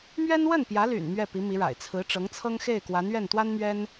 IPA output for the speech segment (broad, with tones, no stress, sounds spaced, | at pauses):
m ɥ ɛ˥ n w ə˥˩ n p j ä˧˥ l y̰˨˩ n m ɥ ɛ˥˩ p i˧˥ m i˧˥ ɻ a̰˨˩ ɪ̯ t͡sʰ ɹ̩˧˥ ʈ͡ʂ ɤ˧˥ ŋ t͡sʰ ɤ˥ ŋ x e˥˩ ɪ̯ k w a˧˥ n ɥ ɛ˥˩ n t̪ w a˥ n m ɥ ɛ˥ n